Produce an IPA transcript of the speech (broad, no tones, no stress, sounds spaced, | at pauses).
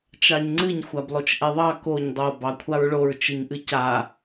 t͡ʃ ɑ ɲ ŋ͡ǀ ɨ ɲ xʷ a b lˠ o t͡ʃ ʔ ɛ ðˤ ɑ k o ɲ dˤ o b ɑ kʷʰ a ɹ ɭ o ɹ t͡ʃ ɨ ɲ ʔ ɨ c a